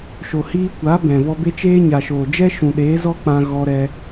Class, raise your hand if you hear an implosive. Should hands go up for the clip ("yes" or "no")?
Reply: yes